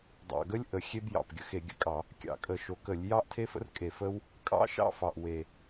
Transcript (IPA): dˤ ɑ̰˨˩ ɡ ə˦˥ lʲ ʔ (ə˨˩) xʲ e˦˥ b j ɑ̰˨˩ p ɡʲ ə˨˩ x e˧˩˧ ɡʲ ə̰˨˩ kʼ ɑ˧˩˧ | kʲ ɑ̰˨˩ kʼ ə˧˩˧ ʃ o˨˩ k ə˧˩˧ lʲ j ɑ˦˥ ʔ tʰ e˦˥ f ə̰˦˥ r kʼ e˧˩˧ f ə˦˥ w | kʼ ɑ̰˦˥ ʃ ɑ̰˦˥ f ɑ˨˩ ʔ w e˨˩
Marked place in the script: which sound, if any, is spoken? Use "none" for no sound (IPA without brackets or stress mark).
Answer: ə˧˩˧